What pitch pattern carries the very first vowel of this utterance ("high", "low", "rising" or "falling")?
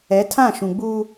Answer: rising